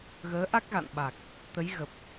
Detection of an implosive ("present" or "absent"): present